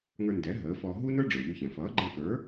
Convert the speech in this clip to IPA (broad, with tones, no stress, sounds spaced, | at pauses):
ŋ ə˞˧ n d ɛ˩˥ ɦ əː˩˥ f ɔː˧ ɦ u˥ n ə˞˥ ɖ͡ʐ ə˞˩ ʎ y˧ ç ɛ̃˩ f ʌː˩˥ ɡ͡ǃ ɛ̃˧ k ə˞˩˥